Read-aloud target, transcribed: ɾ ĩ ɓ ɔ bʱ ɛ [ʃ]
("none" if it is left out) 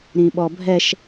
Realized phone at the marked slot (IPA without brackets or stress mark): ʃ